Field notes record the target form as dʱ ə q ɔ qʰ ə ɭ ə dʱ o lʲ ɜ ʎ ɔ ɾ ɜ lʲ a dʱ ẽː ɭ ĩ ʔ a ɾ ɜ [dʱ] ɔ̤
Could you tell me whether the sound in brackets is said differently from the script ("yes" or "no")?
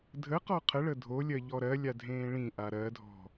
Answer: no